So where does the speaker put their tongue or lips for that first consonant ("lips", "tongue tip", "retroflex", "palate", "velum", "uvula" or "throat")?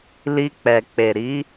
tongue tip